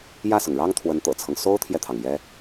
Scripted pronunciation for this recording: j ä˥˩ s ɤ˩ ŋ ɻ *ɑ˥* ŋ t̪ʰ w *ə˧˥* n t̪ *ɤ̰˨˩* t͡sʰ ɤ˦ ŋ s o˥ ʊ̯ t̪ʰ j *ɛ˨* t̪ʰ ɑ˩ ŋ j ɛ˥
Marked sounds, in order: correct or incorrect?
correct, correct, correct, correct

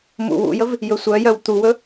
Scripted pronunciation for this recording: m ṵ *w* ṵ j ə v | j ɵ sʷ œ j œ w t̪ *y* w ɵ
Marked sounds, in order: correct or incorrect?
correct, incorrect

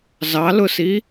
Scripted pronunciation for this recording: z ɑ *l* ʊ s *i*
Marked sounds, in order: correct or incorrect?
correct, correct

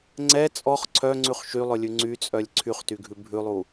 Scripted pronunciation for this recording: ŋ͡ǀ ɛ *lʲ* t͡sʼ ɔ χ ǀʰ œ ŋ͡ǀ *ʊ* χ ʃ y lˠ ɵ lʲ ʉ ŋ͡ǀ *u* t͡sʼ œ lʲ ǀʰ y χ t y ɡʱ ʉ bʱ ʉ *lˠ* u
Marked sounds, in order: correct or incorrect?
incorrect, incorrect, incorrect, correct

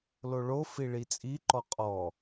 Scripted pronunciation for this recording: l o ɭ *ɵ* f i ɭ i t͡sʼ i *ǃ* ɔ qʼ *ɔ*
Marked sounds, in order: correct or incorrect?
incorrect, correct, correct

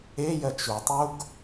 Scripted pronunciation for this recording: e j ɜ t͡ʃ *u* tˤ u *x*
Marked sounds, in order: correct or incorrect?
correct, incorrect

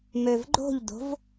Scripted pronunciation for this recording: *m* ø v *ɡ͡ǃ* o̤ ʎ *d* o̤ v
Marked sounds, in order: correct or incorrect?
correct, correct, correct

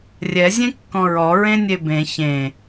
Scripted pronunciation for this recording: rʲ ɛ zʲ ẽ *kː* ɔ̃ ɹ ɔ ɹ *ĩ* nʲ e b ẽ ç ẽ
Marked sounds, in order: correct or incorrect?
correct, incorrect

